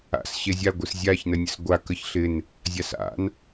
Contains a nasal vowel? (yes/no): no